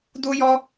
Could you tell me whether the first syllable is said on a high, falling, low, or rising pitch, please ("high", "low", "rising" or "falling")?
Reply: high